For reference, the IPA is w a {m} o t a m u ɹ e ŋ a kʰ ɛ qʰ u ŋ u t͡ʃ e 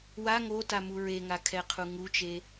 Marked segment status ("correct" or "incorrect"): incorrect